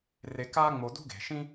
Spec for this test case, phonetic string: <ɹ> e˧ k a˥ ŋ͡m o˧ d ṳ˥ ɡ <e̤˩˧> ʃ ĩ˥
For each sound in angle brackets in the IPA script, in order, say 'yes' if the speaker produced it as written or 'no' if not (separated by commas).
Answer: no, yes